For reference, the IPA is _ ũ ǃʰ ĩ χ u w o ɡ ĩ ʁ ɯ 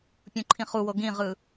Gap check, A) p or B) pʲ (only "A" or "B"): B